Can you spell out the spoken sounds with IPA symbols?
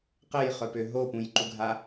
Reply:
qəjχœpø ɦopũjǃuɡʱa

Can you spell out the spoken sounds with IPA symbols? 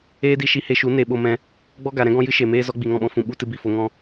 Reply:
eː˦di˧ ʃi˧he˧ʃu˨˦ ne˨ ɓo˧mɛ̃˧ | ɡ͡bɔ˦ɡa˨ ɾɛ̃˦ɡɔ̃˦ jɨ˦ʃe˨meː˦zɔ˦ ɡ͡bi˨ŋɔ̃˦˨ɓɔ̃˧fũ˨ ɓu˧ tɨ˧bi˦˨fo˧ŋɔ̃˦

